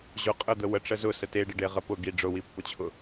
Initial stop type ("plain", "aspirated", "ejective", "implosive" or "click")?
ejective